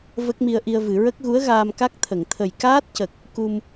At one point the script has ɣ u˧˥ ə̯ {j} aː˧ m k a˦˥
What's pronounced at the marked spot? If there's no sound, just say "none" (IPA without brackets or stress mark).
ɣ